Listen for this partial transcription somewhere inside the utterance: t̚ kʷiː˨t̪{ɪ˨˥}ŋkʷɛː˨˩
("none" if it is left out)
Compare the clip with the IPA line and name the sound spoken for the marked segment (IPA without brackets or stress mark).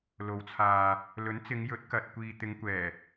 ɪ˨˧